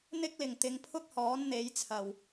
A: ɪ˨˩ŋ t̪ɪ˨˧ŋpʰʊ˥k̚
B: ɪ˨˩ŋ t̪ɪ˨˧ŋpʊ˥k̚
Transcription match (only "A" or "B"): A